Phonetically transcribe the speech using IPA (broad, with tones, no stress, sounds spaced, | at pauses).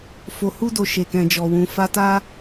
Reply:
f o˨ h u˧ d o˨ ʃ e˨ k ɛ̃˨ d͡ʒ ɔ˨ w ũ˨ f a˧ t a˦